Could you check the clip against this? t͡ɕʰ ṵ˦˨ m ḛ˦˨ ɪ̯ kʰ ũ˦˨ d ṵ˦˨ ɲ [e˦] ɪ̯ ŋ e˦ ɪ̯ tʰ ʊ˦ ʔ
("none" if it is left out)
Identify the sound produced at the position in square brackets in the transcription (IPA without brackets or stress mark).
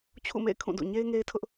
e˦